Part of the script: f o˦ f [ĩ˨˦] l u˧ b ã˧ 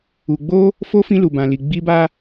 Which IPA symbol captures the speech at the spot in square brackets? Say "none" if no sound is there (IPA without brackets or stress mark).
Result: ĩ˦